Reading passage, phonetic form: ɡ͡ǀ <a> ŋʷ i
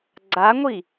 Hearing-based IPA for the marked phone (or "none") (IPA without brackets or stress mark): a